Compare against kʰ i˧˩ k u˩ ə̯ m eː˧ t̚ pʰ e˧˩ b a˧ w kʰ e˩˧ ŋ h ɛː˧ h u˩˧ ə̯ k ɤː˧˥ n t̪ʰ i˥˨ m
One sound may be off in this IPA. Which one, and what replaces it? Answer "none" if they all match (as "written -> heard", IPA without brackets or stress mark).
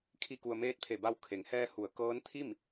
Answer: none